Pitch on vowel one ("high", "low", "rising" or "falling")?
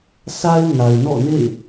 high